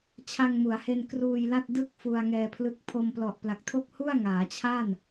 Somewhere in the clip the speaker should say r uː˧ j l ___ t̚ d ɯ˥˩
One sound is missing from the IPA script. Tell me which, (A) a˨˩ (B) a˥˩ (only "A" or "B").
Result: B